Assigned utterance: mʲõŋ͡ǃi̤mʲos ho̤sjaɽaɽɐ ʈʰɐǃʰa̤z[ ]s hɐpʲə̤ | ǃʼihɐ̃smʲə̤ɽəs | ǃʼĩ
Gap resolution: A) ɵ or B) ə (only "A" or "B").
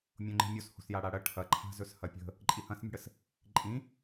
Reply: A